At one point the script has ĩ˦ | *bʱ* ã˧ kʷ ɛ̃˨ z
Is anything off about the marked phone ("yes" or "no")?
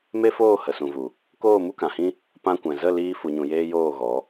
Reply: yes